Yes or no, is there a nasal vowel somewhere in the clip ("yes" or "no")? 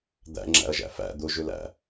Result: no